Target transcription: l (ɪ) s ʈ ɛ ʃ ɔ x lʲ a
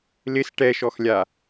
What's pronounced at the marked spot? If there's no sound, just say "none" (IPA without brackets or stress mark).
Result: ɪ